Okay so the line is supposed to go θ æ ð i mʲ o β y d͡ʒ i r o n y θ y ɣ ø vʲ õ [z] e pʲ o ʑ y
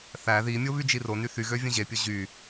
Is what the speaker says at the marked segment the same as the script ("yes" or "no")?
no